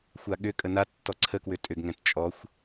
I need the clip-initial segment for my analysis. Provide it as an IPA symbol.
xʷ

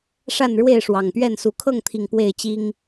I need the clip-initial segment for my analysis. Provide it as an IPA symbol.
ʂ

